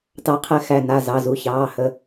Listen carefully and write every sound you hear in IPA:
tɑ˨˥qʰɛ˨˥ xæ˩˧˩na˩˧˩ zɑ˩˧˩zu˩˧˩çɑː˩˧˩hə˩˧˩

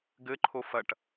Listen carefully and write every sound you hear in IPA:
ɡɘǃʰo fɐʈ

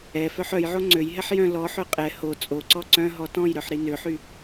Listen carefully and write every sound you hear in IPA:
ɛ fœħœjʕo ŋ͡ǀøjɦɛħ jœ̃ lɔħø qʼɛ ho t͡sʼoǀɔ ǀœ̃ ɦɔtɔ̃jɾœħ ɾinøħy

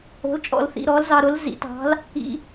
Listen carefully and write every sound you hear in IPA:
o̤˩˥lt͡ʃʼɔ̰˨l θḭ˨ɾɔ˩˥lzɑ˨ ɾʊ˩˥lzḭ˩˥tɑ̤˩˥l | ḭ˨

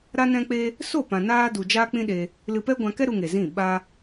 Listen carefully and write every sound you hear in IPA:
ɾa˦nɛ̃˦k͡pe˦ | so˦˨pã˨naː˧du˨ d͡ʒaː˦k͡pĩ˦ɗe˧ | lɨ˧pɛ˦ɡʷã˧kɛ˦ ɾu˧ŋe˨zĩ˦˨ ɓa˦

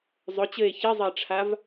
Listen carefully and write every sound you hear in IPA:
zˤɵt͡ɕɘe̯ çizˤɘe̯ʈ͡ʂʰav

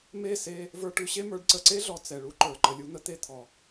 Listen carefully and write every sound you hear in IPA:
me˦˨se˧ | və˞˧ʈʉ˧ɕe˦mə˞˨˦ɖ ǀə˨ǀe˦ɮɔ˨ t͡sɛ˨ɭu˦ǃə˞˨ ǃə˨lʲu˧n̪ə˧t̪e˦ t̪ʰɔ˨

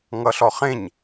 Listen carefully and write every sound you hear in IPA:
ŋʌɬɔχẽɲ

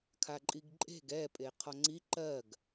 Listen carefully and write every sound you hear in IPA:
kʰaǃʼiɡǃʼe̤ɡ ɛ pʼeqʰɔŋ͡ǀi ǃɜɡ

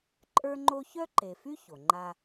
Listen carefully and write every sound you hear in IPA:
ǃʼə˞˥ŋ͡ǃo˥ çœ˥ǃe˨fy˥ ço˩ŋ͡ǃa˦

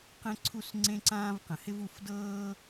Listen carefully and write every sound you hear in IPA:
qɛ̃˦ ǀʰu˦sŋ͡ǀẽ˦ǀãː˦v qə̃˨hɪ˦vu˧fdɤː˦

